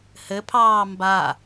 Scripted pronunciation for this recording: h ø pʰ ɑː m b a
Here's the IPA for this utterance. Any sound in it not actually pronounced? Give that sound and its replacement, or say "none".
ø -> ɘ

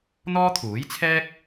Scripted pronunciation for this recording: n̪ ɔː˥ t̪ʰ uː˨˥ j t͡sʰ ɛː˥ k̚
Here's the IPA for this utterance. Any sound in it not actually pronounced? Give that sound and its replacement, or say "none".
none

